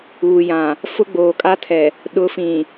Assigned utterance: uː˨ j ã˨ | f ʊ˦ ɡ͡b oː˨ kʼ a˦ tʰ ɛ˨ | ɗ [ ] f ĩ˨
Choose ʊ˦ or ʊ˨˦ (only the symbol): ʊ˨˦